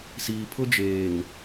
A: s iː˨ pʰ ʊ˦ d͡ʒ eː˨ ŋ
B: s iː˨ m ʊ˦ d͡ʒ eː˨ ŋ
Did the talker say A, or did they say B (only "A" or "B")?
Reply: A